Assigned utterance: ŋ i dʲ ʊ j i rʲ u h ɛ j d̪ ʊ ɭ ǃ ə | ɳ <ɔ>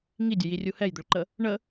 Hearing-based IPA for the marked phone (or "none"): ə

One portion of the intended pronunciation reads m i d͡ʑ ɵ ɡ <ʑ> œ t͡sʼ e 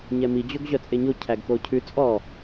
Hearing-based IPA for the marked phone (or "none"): ʑ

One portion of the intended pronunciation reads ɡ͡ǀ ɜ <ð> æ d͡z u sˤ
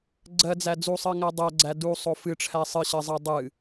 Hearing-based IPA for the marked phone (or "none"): d͡z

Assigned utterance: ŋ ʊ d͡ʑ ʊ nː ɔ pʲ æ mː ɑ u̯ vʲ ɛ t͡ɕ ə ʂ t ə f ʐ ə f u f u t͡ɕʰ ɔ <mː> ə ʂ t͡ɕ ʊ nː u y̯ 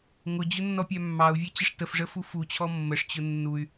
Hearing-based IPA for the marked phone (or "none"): mː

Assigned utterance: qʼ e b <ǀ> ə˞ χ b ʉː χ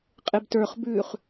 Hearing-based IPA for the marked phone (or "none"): t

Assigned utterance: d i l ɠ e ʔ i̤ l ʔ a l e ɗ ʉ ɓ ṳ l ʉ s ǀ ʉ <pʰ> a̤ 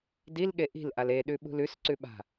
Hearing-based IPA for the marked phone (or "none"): ɓ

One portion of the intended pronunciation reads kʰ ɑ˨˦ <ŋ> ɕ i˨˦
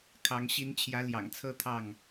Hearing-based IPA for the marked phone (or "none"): ŋ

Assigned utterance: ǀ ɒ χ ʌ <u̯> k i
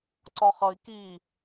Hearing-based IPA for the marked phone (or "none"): i̯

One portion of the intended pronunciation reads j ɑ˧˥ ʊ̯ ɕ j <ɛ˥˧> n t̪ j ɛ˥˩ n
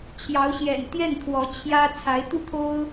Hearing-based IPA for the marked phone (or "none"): ɛ̰˨˩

